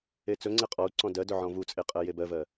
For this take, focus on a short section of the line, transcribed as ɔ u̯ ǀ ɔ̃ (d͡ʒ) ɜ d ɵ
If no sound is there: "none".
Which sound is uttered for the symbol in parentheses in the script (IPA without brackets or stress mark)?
d